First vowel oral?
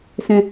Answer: no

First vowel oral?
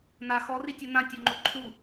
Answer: yes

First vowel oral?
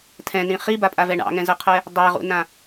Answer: no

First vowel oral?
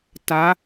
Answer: yes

